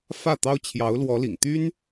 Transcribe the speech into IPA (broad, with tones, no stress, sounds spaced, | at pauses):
f ä˥˩ t̪ ɑ˥ ʊ̯ t͡ɕʰ j ɑ˧˥ ʊ̯ l w ɔ˧˥ l ḭ˨˩ ŋ t̪ y˥ n